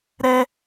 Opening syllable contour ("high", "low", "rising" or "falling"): high